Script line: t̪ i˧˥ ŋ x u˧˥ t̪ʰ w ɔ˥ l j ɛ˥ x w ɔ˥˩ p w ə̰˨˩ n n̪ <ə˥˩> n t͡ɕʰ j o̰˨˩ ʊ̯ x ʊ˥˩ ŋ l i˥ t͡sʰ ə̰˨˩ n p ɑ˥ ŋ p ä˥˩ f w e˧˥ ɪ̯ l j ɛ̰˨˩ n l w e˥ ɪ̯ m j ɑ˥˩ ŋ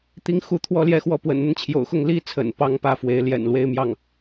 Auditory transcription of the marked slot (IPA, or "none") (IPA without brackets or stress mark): ə˥˩